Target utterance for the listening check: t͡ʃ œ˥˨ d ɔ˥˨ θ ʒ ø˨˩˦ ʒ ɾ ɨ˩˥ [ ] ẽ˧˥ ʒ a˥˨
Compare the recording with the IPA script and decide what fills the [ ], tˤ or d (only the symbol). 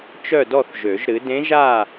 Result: d